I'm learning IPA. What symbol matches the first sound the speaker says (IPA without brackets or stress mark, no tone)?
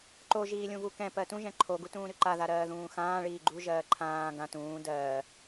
ǃ